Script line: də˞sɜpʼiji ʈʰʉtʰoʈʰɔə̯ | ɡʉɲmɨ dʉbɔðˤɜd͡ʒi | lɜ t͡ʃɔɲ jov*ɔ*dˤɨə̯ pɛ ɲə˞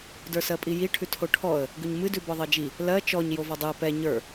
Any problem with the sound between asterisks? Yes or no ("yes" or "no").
no